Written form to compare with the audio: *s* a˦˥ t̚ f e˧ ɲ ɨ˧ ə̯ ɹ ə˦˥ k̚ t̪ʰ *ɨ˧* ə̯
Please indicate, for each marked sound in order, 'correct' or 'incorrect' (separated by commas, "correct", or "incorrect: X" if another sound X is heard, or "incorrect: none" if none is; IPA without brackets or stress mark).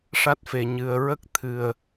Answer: incorrect: ʂ, correct